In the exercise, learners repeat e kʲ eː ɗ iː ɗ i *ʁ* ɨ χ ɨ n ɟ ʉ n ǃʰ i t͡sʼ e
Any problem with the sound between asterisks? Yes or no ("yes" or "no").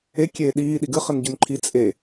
yes